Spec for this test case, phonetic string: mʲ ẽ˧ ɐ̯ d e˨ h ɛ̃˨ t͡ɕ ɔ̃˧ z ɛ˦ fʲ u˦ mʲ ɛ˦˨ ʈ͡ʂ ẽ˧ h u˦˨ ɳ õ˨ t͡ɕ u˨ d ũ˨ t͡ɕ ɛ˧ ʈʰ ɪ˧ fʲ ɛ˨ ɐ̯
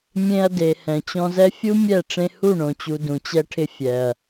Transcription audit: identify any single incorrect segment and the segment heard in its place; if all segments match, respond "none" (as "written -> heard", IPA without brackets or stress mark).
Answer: none